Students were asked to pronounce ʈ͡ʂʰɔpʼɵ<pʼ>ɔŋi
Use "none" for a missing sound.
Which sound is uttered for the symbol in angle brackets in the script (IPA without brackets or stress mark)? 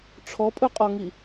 qʼ